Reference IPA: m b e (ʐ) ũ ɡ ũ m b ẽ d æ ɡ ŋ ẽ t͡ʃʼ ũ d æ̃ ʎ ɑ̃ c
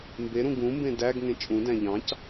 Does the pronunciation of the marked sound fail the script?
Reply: yes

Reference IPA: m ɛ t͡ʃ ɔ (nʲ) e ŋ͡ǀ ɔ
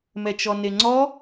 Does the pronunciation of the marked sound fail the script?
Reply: yes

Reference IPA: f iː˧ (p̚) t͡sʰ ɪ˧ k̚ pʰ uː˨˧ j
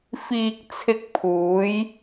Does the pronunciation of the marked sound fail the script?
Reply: yes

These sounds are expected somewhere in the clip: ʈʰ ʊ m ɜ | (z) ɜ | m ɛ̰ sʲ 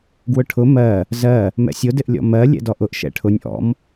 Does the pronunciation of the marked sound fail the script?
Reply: no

